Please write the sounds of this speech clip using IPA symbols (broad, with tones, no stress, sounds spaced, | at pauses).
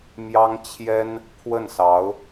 m j ɑ˥ ŋ t͡ɕʰ j ɛ˥ n | pʰ w ə˥˩ n s ɑ˧˥ ʊ̯